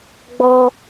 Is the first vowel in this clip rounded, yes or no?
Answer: yes